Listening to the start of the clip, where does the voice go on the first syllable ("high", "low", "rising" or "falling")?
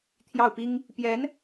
falling